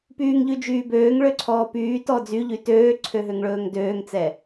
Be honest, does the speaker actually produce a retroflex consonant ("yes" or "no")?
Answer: yes